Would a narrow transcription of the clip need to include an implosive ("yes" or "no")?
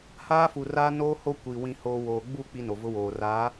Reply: no